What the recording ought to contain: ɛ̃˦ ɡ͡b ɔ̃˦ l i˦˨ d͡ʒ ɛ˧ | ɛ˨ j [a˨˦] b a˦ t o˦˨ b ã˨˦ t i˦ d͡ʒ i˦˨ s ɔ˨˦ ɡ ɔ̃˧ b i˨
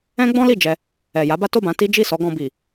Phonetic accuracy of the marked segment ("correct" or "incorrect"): correct